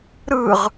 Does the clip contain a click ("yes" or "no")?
no